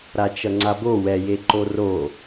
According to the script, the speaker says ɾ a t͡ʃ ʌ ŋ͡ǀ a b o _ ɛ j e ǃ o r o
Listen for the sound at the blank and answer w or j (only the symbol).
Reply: w